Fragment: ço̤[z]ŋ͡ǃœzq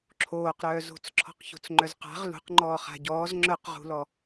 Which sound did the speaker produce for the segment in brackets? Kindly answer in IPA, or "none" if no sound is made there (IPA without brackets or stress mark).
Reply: t͡s